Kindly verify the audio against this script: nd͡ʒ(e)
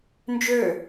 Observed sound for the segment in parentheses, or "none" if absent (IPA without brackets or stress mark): ø